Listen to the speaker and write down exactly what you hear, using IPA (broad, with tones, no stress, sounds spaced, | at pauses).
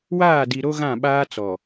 w aː˦˨ d i˨ ɾ o˦ ɣ ã˦˨ ɓ aː˦ t͡s ɔ˨